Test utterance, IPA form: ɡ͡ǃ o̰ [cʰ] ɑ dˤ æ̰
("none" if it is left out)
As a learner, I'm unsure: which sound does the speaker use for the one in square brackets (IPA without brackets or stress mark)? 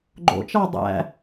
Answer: t͡ʃ